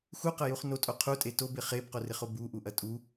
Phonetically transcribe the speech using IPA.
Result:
x u q ɐ j u χ n o tʼ o qʰ u tʼ e t o b ɪ χ e b q o r ɪ χ o b u ʔ u ʔ ɐ tʼ u

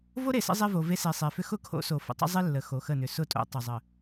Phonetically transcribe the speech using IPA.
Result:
v o˦ ɾ e˨ s ə̰˦ zˤ e˦ v o˨ v e˦ s e˨ sˤ e˨ f ʏ˦ x ʊ˦ kʰ o̰˦ s o˨ f ə̰˨ tˤ ə̰˦ zˤ e˦ lː ə˨ x o˨ x ə˦˨ n ʏ˨ s ʊ˦˨ tʼ o̰˦ tˤ ʊ˨ zˤ ə˨

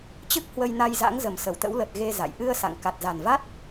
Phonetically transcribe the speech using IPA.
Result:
t͡ɕ ɨ˦˥ k̚ h w ə˧ j n a˧ j z a̰˧˥ ŋ z ə˨˩ m s ə˧˩ w t̪ ə̰˧˥ w l ə˨˩ t̚ ɣ e˧ z a̰˧˨ j ʔ ɨ˧ ə̯ s a̰˧˨ ŋ k a˨˩ t̚ z a˨˩ n v a˦˥ t̚

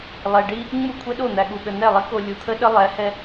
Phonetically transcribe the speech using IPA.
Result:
lˠ ɛ˨ ɖ i˦ | ŋ͡m u˦˨ kʷʰ ɛ˦ ɗ o˦˨ n̪ æ˨ ɠ u˨ ɠ ə˨ n ɛ˦˨ lˠ i˦ k o˨ lʲ u˨ t̪ʰ ə˦ ɗ ə˦ lˠ ɛ˨˦ h ɛ˦

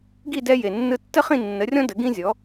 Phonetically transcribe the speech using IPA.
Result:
ɡ i˥˩ d ɛ˧ j e˩ nː ɯ˧ tː ə˥ χ ĩ˥˩ nː ə˩˥ rʲ ɔ̃˥ d ə˩˥ ɡ ĩ˥ zʲ ɔ˩˥

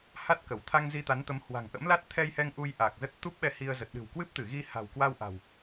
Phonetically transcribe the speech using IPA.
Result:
h a˦˥ t̚ k ə˧˩ w t̪ʰ a˧ ŋ z i˧ t̪ a˨˦ n t̪ ə˨˦ m h w a̤˨˩ ŋ ʔ ə̰˧˥ m l a˦˥ t̚ t̪ʰ ɛ˧ j h ɛ˧ ŋ ʔ u˧ j ʔ a˨˩ k̚ z ə˦˥ t̚ t̪ u˦˥ p̚ ɓ ɛ˧ h i˧ ə̯ z ə˨˩ t̚ ɗ ɨ̤˨˩ w k w ɨ˦˥ p̚ t̪ ɨ˧˩ ɣ i˧ h a̤˨˩ w k w a˧ w ʔ a̤˨˩ w

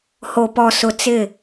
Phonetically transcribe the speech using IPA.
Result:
h o˨ p ɔ˨ s ʊ˨ t͡s ɪ˦˨

